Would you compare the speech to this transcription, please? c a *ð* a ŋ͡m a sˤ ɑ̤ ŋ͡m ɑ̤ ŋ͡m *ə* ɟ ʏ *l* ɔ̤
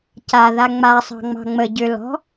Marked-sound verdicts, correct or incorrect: correct, correct, correct

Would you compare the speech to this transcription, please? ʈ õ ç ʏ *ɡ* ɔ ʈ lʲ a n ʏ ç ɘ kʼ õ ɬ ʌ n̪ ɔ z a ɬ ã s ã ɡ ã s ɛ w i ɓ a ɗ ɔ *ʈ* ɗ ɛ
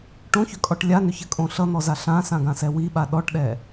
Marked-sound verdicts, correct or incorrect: incorrect, correct

